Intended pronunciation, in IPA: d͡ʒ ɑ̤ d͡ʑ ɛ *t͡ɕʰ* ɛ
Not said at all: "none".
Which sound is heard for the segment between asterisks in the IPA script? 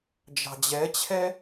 t͡ɕʰ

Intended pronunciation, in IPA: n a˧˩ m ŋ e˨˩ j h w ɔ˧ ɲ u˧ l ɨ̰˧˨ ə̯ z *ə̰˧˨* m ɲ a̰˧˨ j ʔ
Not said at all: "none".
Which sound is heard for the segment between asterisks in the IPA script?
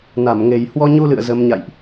ə˨˦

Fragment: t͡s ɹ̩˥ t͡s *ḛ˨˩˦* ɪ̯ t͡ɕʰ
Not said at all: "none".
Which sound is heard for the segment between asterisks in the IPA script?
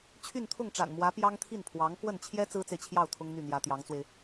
e˨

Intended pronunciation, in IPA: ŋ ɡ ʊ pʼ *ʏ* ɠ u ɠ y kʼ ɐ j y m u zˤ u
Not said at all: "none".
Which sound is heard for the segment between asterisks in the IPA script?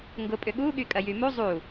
ʏ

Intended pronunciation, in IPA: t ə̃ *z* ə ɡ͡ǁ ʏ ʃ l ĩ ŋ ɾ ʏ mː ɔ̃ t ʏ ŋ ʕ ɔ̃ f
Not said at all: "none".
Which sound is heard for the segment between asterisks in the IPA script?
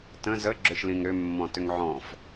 z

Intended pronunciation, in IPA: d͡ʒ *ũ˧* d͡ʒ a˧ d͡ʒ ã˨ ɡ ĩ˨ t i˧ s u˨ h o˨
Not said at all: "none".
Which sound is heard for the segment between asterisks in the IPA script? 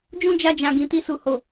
ũ˦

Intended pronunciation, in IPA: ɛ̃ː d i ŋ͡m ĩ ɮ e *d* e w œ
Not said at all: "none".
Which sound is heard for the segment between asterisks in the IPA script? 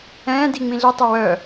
tˤ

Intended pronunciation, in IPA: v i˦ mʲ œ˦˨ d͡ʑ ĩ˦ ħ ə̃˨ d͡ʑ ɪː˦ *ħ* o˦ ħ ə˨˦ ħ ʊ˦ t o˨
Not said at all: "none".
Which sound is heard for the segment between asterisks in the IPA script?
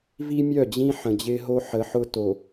ɦ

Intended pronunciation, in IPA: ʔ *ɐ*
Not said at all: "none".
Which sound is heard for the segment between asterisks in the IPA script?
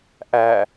æ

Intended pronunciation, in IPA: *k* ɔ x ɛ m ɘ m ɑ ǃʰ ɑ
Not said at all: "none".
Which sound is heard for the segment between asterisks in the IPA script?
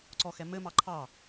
ǀ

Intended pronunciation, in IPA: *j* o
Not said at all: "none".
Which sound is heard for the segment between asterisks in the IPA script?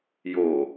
j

